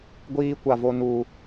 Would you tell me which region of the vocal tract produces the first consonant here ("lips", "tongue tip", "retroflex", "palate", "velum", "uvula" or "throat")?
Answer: velum